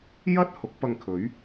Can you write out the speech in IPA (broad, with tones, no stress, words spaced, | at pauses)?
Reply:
jɐ˥t̚ hʊ˨˥k̚pɐ˧ŋkʰɵ˨˥ɥ